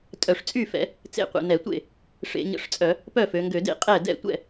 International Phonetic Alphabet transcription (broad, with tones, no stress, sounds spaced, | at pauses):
tʼ œ˧˩˧ ʂ t͡sʼ y˥˩ f ɛ̰˩˧ | t͡s ḛ˥˩ qʷ ḛ˩˧ n ɛ˧˩˧ tʷ ḛ˥˩ | ʂ ḛ˧˩˧ ɲ ə̰˧˩˧ ʂ t͡sʼ œ˧˩˧ | p œ˥˩ f ø˩˧ ŋ ɡ ø˧˩˧ d ḛ˥˩ qʼ ɛ˥˩ d ɛ̰˥˩ tʷ ɛ̰˥˩